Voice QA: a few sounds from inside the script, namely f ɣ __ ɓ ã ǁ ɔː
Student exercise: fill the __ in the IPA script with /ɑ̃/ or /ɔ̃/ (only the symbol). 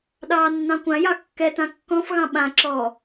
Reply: ɑ̃